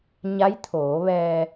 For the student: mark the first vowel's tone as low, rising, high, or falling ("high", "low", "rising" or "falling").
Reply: rising